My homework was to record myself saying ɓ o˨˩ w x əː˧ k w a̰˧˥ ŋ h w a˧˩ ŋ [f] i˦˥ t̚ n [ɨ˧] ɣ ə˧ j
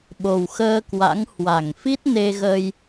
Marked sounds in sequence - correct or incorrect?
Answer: correct, incorrect

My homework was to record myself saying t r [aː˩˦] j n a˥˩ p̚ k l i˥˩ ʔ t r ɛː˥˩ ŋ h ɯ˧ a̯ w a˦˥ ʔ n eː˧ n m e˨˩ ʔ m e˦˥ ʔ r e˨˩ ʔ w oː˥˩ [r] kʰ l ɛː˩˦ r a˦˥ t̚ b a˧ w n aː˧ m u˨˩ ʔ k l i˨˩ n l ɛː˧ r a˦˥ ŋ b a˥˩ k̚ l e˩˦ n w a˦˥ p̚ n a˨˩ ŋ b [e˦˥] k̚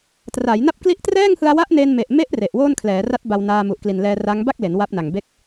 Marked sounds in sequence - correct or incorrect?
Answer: correct, incorrect, incorrect

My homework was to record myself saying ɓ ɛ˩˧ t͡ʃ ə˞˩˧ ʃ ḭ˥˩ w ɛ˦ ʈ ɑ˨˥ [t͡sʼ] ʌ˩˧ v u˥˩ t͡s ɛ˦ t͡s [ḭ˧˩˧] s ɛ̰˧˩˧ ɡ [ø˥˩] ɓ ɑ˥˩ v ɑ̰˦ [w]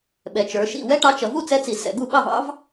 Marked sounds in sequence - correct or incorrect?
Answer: incorrect, incorrect, incorrect, incorrect

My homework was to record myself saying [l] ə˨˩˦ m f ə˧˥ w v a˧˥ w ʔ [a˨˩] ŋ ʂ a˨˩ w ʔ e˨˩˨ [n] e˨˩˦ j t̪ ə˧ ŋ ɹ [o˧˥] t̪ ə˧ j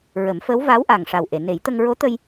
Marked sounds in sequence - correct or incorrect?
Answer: incorrect, correct, correct, correct

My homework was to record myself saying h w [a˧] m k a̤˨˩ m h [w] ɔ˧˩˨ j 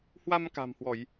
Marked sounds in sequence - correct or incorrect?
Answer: correct, correct

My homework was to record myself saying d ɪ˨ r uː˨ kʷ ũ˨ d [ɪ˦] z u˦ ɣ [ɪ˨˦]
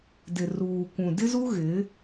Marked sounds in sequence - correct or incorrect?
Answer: correct, correct

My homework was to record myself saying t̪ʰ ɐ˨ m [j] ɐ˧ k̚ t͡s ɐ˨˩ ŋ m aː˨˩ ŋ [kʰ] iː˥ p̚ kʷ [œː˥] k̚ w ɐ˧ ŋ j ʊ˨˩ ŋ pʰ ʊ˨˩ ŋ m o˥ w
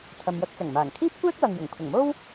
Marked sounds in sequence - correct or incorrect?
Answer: correct, correct, incorrect

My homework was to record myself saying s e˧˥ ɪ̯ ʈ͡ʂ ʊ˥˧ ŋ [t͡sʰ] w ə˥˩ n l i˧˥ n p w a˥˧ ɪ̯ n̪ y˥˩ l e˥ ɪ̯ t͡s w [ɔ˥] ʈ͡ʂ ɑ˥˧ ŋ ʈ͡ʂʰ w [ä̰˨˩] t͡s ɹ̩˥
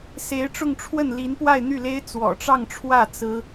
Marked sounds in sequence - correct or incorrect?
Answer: incorrect, incorrect, incorrect

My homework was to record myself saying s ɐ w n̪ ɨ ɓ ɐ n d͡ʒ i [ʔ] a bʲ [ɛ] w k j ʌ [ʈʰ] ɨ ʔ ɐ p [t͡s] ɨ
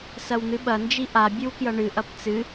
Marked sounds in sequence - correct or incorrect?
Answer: correct, incorrect, incorrect, correct

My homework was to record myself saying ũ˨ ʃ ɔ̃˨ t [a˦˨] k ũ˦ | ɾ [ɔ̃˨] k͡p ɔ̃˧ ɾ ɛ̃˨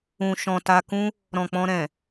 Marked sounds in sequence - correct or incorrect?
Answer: incorrect, correct

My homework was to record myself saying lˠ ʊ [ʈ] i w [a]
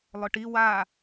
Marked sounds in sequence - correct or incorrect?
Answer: correct, correct

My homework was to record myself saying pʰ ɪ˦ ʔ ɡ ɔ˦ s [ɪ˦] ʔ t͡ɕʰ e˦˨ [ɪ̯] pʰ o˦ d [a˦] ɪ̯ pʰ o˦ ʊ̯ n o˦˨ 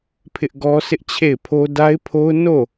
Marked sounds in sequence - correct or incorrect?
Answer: correct, correct, correct

